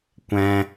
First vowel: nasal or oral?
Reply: nasal